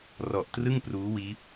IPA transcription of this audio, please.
r ɔ˨˩ ʔ t r ɯ˥˩ ŋ p r uː˦˥ w iː˦˥ p̚

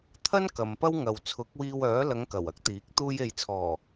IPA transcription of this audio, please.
t̪ʰ ɐ˥ n k ɐ˨ m p ɐ˥ w ŋ ɐ˨ w t͡sʰ ʊ˨˥ k̚ w iː˧ w œː˨˥ l ɐ˨˧ ŋ k ɐ˨˩ w ɐ˥ k̚ t̪ iː˨˥ k̚ t̪ uː˧ j e˨ j t͡sʰ ɔː˨˩

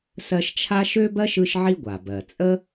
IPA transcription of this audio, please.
s ɜ˦ ʃ t͡ʃʰ a˥ ʃ ø˥ b ɜ˥ ʃ ɯ˦ ʃ ʕ i˦ ɡʷ a˩ b ɜ˩ t͡sʼ ə˥

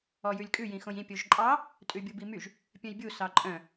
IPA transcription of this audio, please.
ɔ j ʉ lʲ kʼ ʉ j ĩ x õ j ĩ pʲ o ʒ ǃʼ ɑ | tʼ ʉ bʲ u b i m y ʒ | pʲ œ̃ j bʲ u s ɑ ǃʼ œ̃

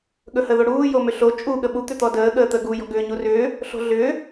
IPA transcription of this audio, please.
ɠ ɵ h ə ð o ɽ uː j o m ʏ ɬ o t͡ʃʼ u ɠ ə ɓ u t̪ ʏ t̪ ɔ d əː ɠ əː t̪ ə ɡ u j ɔ̤ ɡ ʏː ɲ u r ʏː | ɬ o̤ ɮ ʏː

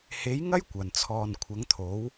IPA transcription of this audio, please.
h e˨˥ j ŋ ɐ˥ j kʷ ɐ˨˩ n t͡sʰ ɔː˨ n kʷʰ ɐ˨˥ ŋ t̪ʰ o˨˥ w

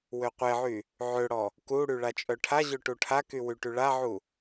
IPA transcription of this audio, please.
w ø qʷ e ʕ y | ʕ ø ɽ ɔ | k u ɽ y ɭ a t͡ʃʼ œ ʈʰ a ʑ ø ʈ u ʈʰ a k y w y ʈ y ɭ a ʕ u

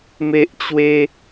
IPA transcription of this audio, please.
m e˦ ʔ t͡ɕ w e˦

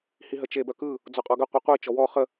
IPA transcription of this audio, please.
h i ɦ ə t͡ʃ e b œ k ɯ | d͡z ɔ qʼ ɔ ɡ ə qʷ i qʷ i t͡ʃ ɔ w ɔ χ ə

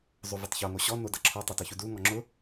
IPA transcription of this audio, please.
zˤ o v ʊ tˤ ç o ŋ o ɕ ɔ n o d ʌ ǁʰ ɔ tˤ ʌ t ʌ ç u d u ŋ ɔ ŋ͡ǁ ʊ

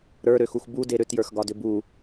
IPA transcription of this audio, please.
ɾ ə˞ ɾ ø x u x b u d e ɾ ʏ t j ə˞ x ɡ ɒ d ʏ b u

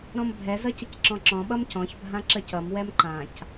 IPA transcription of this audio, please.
ɾ ɔ̃ m bʱ ɛ z ʌ c ə c ǁ ɔ̃ ǁ ɔ̃ ɓ ʌ m c ɔ̃ ç bʱ ã ǁ ə c ʌ m w ɛ m ǃ ã c

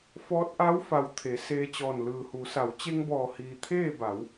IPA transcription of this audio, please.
f ɔː˧˥ t̚ ʔ a˧˥ w f a˩ w t̪ʰ e˩˧ s eː˧ t͡ɕ ɔː˧˩ n l ɯː˩ h u˩˧ s a˩˧ w t͡ɕ e˧ ŋ b ɔː˧˩ h iː˩ t̪ʰ eː˥˨ b a˩˧ w

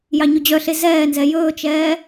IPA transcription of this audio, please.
j ɑ ɲ ɵ d͡ʑ œ ɬ e z ɛː n z ɛ j ɵː t͡ʃ ɛː

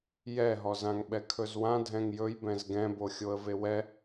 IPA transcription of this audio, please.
j ɛ ɦ ɔ z ã ŋ ɓ ɛ kʰ ɵ z w ã dʱ ɛ̃ ŋ j ɵ j b ɛ̃ z ɡ ɛ̃ b o xʲ o ə̯ v e w ɛ

